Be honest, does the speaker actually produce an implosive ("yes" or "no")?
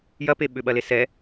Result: yes